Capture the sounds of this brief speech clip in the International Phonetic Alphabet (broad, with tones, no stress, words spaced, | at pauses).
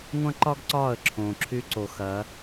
ŋʷɐ̃˦ǃɒ˦ɡ ǀɒː˦˨ə̯ǁʰõː˨ǁʰy˧ǀo˨ xɐ˨˦